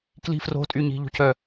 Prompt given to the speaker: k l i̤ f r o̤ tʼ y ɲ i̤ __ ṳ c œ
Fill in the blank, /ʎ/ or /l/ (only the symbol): ʎ